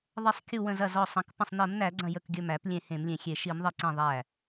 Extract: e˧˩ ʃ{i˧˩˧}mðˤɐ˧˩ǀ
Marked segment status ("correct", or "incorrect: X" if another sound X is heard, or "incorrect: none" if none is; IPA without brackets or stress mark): correct